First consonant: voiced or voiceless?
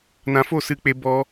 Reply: voiced